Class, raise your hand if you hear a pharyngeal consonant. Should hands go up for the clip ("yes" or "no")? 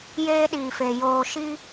no